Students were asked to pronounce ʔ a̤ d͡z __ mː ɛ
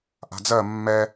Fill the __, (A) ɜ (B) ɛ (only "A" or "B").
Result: A